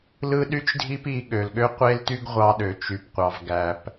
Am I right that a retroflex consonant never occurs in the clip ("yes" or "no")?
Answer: yes